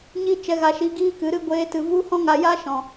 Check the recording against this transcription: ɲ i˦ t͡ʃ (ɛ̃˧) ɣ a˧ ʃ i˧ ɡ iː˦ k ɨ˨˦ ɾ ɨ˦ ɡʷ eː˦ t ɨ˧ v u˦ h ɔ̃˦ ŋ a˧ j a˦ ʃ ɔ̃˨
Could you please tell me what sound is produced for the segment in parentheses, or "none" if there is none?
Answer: ɛ˧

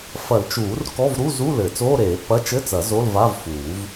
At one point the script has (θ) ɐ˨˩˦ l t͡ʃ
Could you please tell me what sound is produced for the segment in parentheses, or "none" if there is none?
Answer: f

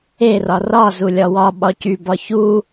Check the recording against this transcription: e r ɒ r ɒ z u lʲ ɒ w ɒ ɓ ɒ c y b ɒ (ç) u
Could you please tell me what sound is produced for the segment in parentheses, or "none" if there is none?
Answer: ç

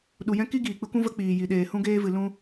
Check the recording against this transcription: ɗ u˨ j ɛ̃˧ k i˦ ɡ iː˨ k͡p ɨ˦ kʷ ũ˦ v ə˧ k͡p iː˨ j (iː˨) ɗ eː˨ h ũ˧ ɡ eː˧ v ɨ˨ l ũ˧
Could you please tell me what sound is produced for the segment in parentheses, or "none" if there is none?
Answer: i˨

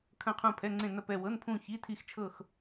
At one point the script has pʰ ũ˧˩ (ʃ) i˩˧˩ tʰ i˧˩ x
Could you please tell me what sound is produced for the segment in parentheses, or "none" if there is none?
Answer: ç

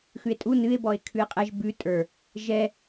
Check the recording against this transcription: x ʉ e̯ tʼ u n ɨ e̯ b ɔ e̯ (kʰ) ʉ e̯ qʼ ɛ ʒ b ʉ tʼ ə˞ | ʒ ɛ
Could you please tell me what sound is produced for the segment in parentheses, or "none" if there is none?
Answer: kʰ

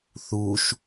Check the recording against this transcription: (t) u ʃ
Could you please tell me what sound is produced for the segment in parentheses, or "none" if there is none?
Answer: θ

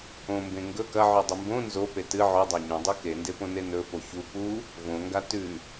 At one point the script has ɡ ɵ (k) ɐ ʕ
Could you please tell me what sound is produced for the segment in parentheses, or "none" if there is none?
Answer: k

